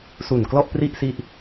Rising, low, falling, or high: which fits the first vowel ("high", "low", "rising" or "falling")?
low